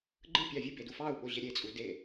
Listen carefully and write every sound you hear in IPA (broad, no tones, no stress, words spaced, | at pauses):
ɡ͡ǃɯpʲɑ vʲɯbedu fɑu̯ɓoʑe ɾʲet͡sʼu de